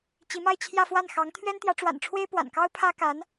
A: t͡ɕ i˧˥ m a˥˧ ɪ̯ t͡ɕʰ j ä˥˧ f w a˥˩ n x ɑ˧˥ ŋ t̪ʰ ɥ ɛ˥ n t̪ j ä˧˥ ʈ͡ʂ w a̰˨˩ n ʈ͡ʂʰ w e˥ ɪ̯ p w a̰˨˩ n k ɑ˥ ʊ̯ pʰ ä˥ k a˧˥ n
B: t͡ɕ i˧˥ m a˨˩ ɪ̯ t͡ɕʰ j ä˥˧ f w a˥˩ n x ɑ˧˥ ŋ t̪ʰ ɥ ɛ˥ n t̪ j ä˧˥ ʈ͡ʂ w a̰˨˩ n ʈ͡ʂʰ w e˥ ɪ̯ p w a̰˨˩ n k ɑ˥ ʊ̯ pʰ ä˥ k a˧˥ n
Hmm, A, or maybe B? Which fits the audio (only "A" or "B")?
A